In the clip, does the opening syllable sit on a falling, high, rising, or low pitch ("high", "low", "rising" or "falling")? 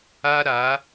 high